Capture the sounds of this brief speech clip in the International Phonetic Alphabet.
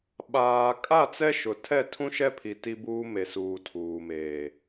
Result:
ɓaː˨ kʼa˦˨t͡sɛ˦ʃʊ˨tʰɛ˦˨ tʰũ˦ʃɛ˦pʰi˨ ti˦buː˦ me˨suː˨ tʰuː˨meː˨

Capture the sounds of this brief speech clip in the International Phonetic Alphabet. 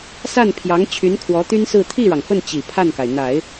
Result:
sa˥˩npʰjɑ˧˥ŋ t͡ɕʰy˧˥nkʰwɔ˧˥t̪y˥nsɹ̩˥˧ t̪ʰi˥˩ɻɑ˩ŋfə˥˩n t͡ɕi˨˩pʰa˥˩nka˩ɪ̯n̪a˨˩˦ɪ̯

